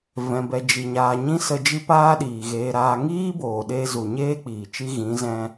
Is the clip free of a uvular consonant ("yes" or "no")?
yes